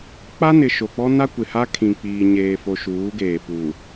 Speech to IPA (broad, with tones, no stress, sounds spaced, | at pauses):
k͡p a˦ n ɪ˨ ʃ o˨ k͡p ɔ˦ n a˦ kʷ ɪ˨ h a˦ kʰ ĩ˨ k͡p iː˨ ɲ eː˨ f o˨ ʃ uː˨˦ ɡ eː˨ p uː˨